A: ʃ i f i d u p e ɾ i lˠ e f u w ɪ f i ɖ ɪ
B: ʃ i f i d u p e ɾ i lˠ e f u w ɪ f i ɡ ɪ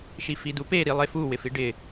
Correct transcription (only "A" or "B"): A